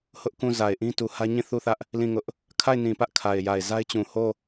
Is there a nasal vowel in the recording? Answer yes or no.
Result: yes